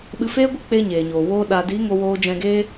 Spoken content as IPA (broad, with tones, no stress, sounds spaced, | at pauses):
ɓ ɨ˧ f eː˦ ɡʷ ɨ˦ k͡p e˧ ɲ eː˨ ɲ oː˨ w oː˧ ɗ a˨ d i˨˦ ŋ o˦ w oː˦ d͡ʒ ɛ̃˧ ɡ eː˦